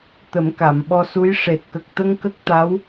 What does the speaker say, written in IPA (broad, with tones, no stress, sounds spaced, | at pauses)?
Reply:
t̪ ə˨˩˦ m k a˨˩˨ m ɓ ɔ˧ s u˧˥ j ʂ e˨˩ t̚ k ə˨˩ k̚ t̪ ə˧ ŋ k ə˦˥ k̚ t̪ a˧˥ w